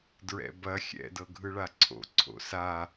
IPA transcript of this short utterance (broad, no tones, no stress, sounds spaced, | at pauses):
d ɹ ɛ̰ b ɐ xʲ ɛ̰ d ɤ ɡʱ ɯ ɭ a ǀʰ o̰ ǀʰ o̰ s a